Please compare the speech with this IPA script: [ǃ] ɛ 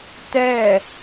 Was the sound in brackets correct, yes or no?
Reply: no